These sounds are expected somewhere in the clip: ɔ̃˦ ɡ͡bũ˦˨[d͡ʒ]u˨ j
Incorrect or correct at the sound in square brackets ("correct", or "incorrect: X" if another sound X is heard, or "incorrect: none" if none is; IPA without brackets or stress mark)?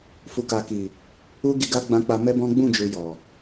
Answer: correct